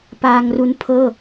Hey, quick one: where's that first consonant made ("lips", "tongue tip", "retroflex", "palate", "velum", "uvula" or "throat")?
lips